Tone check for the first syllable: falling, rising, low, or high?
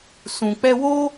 low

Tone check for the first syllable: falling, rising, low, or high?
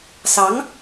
rising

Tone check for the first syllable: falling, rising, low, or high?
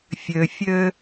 low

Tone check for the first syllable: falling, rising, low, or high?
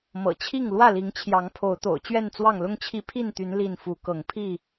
low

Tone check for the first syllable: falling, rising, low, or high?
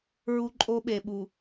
high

